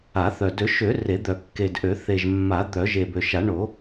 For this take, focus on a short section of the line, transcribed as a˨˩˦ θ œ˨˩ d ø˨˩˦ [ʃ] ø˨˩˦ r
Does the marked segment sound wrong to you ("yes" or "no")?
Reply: no